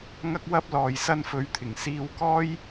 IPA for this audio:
ŋ ɐ˧ k̚ w ɐ˧ p̚ l ɔː˨ j s ɐ˧ n f ɵ˨˧ ɥ t̪ʰ ɪ˨˩ ŋ s iː˧ w k ɔː˥ j

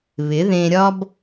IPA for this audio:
β ɪ˨˦ ð ẽ˧ ɾʲ ɒ˦ b

